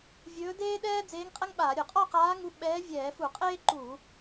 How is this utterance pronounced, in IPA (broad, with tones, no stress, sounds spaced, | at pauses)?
vʲ ɵː˧˥ d eː˥ ɗ ɛː˥ d͡z eː˧˥ ŋ qʼ ɛ˥ ŋ ɓ aː˧˩˧ ɾʲ ɵ˧˩˧ qʼ ɔ˥˧ q aː˧˥ ŋ u˧˥ ɓ ɛː˧˥ vʲ ɛː˧˩˧ f u˧˩˧ qʼ eː˥ ǃ uː˧˩˧